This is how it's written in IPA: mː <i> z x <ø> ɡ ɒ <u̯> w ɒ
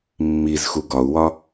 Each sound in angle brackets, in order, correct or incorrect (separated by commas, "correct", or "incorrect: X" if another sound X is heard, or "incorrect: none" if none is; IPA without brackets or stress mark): correct, incorrect: u, correct